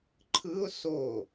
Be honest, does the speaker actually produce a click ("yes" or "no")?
yes